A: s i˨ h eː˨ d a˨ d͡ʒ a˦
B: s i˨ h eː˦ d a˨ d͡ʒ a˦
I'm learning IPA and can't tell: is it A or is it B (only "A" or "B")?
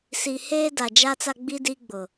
B